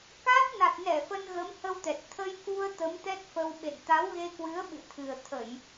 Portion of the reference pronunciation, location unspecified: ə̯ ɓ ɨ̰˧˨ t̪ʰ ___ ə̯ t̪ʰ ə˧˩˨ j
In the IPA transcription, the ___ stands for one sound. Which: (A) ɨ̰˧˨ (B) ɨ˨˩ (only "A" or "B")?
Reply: B